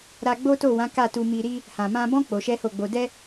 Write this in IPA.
ɾ a˧ ɡ͡b o˦ t o˦˨ w ã˨˦ k a˦˨ t u˧ m i˧ ɾ i˦ | h ã˨ m ã˧ b ɔ̃˦ k͡p o˧ ʃ ɛ˦ h o˦˨ ɡ͡b o˧ d ɛ˦

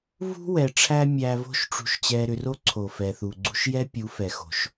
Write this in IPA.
v ṳ˦ w ɛ˨ ʈ͡ʂʰ æ˦ mʲ æ˧ v o̤˦ ʃ ʈ͡ʂ ṳ˧ ʃ t͡ɕ ɛ˧ ɾ ʏ˧ r o˦ ǀʰ o˨ f ɛ˨ θ u˨ ɡ͡ǀ ṳ˦ ʃ j ɛ˦ pʲ u˨˦ f ɛ˨ x o̤˨ ʃ

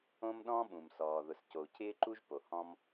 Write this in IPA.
õ˥ m ɗ ɔ̃˥ ɓ ũ˩ m s ɔː˩ ð ʊ˩ s c o˩ u̯ cʰ ɪː˥ ǃ u˥ ʒ p o˩ h ɔ̃˥ m

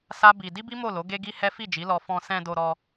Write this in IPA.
s a˦ b i˧ d i˦ b i˦ m o˦˨ l o˨˦ ɡ e˦ ɡ i˦ h ɛ˦ f i˦˨ d͡ʒ i˨˦ l ɔ˧ f ɔ̃˧ s ɛ̃˧ d o˧ ɾ ɔ˧

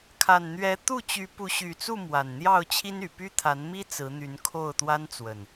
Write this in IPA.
kʰ a˨˩ n n̪ ɥ ɛ˨˦ t̪ u˥˨ t͡ɕ y˨˦ p u˨˦ ɕ y˨˩ t͡s u˥˨ m w a˨˩ n n̪ j ɑ˥˨ ʊ̯ t͡ɕʰ i˦ n y˨˩ p y˦ t̪ʰ a˨˦ n m i˦ t͡s ɹ̩˨˦ n̪ y˨˦ n kʰ o˥˨ ʊ̯ t̪ w a˦ n t͡s w ə˨˩ n

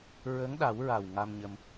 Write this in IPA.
ɹ ə˧˥ ŋ ɗ a˨˩˦ w ɹ a˨˩ w ŋ a˧ m ɲ ə˧ m

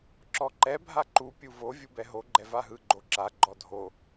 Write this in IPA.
ǁ ɔ ǃ ɛ bʱ a ǃ u pʲ u v o vʲ u b ɛ ɦ o ɡ͡ǃ ɛ v a ɦ ɯ ɡ͡ǃ o ǁ a ɡ͡ǃ ɔ dʱ o

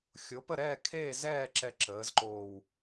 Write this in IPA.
xʲ o˩˥ p ə˦˨ ɾ ɛː˦˨ kʰ eː˦˨ z ɛː˦˨ ǁ ɛ˦˨ ǁ əː˩˥ z ǃ oː˦˨ w

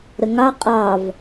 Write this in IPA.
ɾ ə ŋ ɑ qʼ ɑ v

